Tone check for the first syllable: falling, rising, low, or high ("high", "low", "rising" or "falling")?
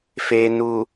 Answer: low